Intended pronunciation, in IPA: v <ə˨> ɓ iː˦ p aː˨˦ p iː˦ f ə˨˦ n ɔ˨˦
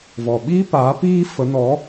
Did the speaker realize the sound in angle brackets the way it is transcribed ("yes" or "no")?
no